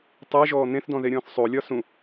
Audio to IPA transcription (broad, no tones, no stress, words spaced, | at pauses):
tˤeʒɔː n̪ẽθdɔ̃ðeɾʲɔ̃ːθ sˤolʲɒ sũ